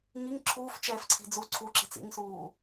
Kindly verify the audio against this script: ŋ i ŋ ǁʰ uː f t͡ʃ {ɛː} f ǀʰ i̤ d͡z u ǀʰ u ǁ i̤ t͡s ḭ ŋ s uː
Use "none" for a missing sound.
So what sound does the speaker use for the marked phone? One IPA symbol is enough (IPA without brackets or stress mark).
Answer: ɛː